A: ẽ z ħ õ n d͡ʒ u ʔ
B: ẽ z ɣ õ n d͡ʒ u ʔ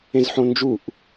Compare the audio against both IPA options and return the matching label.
A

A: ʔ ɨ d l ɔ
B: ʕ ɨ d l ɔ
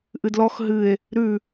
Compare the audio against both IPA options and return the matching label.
A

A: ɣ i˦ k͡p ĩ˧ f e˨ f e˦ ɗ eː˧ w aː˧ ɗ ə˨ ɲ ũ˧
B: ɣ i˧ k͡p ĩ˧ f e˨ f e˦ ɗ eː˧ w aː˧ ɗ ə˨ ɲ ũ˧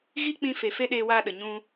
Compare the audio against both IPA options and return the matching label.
A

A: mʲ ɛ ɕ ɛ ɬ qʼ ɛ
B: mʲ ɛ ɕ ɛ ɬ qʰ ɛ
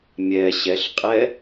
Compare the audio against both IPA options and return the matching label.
A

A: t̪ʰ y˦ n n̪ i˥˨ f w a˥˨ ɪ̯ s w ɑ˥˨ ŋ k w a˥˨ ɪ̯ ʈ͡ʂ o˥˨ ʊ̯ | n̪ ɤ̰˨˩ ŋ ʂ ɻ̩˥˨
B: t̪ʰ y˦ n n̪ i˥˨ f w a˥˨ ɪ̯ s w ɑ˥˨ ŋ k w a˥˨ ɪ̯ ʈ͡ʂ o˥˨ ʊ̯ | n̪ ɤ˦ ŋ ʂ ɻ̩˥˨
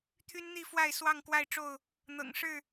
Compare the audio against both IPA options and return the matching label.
A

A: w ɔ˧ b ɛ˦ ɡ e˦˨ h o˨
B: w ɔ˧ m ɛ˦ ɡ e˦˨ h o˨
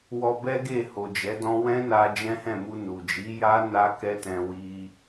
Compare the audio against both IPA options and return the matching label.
A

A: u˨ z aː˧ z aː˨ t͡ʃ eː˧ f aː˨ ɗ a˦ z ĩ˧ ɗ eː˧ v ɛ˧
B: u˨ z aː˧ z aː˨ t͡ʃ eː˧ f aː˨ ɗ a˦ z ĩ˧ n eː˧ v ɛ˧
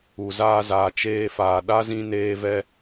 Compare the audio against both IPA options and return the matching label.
B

